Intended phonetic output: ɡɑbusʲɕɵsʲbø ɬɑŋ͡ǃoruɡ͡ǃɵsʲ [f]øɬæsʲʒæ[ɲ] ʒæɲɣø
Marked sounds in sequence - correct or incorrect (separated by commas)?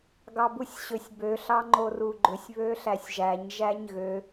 incorrect, correct